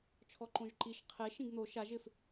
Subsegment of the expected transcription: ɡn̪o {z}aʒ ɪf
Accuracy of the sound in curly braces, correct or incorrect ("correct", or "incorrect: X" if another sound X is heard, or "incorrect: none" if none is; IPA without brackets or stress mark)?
incorrect: ʃ